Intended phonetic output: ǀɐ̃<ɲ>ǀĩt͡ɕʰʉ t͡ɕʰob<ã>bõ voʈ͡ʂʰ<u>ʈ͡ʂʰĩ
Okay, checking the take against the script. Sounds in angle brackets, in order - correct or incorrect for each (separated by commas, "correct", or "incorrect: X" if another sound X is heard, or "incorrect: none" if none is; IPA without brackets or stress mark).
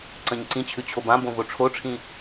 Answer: correct, correct, incorrect: o